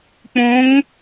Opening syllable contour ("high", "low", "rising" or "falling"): rising